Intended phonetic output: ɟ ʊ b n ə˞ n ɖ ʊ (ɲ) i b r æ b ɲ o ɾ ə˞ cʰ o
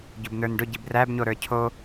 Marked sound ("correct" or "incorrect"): incorrect